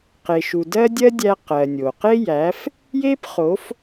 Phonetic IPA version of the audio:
q e˨ ʃ u˨ d ɜ˦ dʲ ɜ˦ dʲ æ˧ q ɜ˨ nʲ o˨ q e˦ j æ˨˦ f | j e˦ p χ o˨˦ f

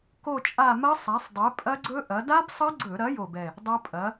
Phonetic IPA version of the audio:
k o˦˨ t͡ʃʼ a˦˨ m ɐ˦˥ sˤ a˨˥ sˤ dˤ ɛ˨˥ pʼ ɐ˦˥ ɡ͡ǀ ɵ˦˥ ʔ ɐ˨˥ d a˦˥ b sˤ ɐ˦˥ ɡ͡ǀ ɵ˧˩˧ ɾ ɐ˨˥ j o˦˨ b ɛ˦˨ | dˤ ɐ˦˥ pʼ ɐ˨˥

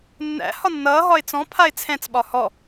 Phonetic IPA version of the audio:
nː æ̰ h ɒ nː ʌː ɦ ɒ ɪ̯ t͡s ɔ̃ pʰ a ɪ̯ t͡sʰ ɛ̃ t͡s ɓ ɒ h ɔ

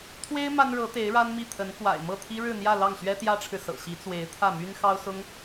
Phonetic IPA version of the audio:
t̪ʰ w e˥ ɪ̯ m a˥ n ɻ ɤ˧˥ t̪ e˧˥ ɪ̯ ɻ a˥ n m i˥˩ t̪ʰ ə˧˥ n k w a̰˨˩ ɪ̯ m ɤ˥˩ t̪ʰ i˥ ɻ ɻ̩˥˧ n̪ j ä˥˧ l ɑ˥˩ ŋ ɕ ɥ ɛ˥ t̪ j ä˥ ʈ͡ʂʰ ɻ̩˨ s ɤ̰˨˩ ɕ i˧˥ t͡s w e˧˥ ɪ̯ t̪ʰ ä˥˩ m y˥ n x ɑ˥ ʊ̯ s ʊ˥ ŋ

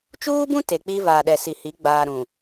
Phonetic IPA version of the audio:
t͡ʃ uː˦ b ũ˦ t e˨ k͡p i˦ v aː˨ ɗ ɛ˨ s i˨ h i˨˦ ɡ͡b aː˨ ɾ ũ˨

